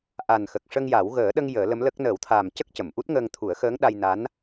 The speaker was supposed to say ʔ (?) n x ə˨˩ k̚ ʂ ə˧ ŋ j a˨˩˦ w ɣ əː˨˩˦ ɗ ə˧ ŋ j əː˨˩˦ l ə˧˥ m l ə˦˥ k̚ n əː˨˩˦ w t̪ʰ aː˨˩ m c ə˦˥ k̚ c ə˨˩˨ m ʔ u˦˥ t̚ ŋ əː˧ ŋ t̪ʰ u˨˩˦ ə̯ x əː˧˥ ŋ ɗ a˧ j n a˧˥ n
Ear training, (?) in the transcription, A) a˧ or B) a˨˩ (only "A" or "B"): B